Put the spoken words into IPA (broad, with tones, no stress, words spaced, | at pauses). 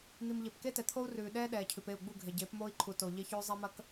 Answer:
n̪i˨m ʎe˨pke˦tɛ˨t̪ʰo˦u̯ rʉː˨ ɗɛː˦ ɗɛː˨cʰʉ˨p e˦˨u̯ɡ͡bu˦˨ɡʱe˨ ɟeː˨˦pmoː˦i̯ǃʰu˨ to˨ ʎe˦çʉː˦ zˤɛ˦mɐ˦k